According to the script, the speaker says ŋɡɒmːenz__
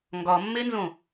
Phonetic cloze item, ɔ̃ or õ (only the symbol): õ